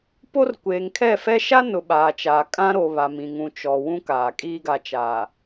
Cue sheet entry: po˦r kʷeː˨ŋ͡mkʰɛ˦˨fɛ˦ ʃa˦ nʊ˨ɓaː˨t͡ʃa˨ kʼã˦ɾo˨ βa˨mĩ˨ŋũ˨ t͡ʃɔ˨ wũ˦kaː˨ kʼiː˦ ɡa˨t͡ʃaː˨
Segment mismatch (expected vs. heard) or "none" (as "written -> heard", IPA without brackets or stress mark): ŋ͡m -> ŋ